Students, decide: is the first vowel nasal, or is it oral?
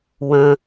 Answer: nasal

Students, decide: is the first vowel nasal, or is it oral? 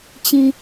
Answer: nasal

